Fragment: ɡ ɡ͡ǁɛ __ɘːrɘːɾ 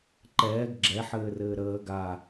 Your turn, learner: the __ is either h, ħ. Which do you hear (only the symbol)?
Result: ħ